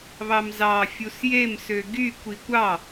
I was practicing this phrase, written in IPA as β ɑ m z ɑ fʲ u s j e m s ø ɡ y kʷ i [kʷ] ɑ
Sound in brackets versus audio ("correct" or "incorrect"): correct